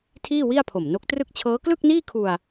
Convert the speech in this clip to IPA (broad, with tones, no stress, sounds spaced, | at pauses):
tʰ iː˥˩ w i˥˩ a̯ pʰ o˨˩ m n o˦˥ k̚ t r ɯ˥˩ k̚ t͡ɕʰ ɤː˦˥ k l ɯ˥˩ k̚ n iː˥˩ kʰ u˧ a̯